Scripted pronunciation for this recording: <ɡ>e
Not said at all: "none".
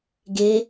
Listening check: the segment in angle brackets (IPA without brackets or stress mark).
ɡ